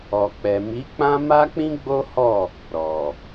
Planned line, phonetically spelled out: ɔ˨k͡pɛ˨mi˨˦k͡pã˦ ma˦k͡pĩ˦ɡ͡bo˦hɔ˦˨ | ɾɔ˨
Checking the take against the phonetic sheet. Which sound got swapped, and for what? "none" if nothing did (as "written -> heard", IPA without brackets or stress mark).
none